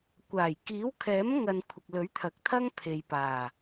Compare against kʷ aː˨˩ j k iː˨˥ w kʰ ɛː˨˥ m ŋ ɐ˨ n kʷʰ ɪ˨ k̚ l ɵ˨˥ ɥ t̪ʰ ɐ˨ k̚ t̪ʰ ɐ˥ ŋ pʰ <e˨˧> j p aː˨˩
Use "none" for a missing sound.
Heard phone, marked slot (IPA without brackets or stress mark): e˨